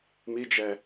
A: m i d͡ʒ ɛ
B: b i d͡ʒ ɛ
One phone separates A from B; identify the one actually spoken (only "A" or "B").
A